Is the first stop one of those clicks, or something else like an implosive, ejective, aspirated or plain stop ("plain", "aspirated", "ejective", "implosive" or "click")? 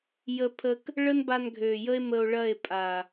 aspirated